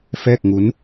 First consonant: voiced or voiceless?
voiceless